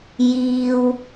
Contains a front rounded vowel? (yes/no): no